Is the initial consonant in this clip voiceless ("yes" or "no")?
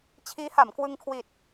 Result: yes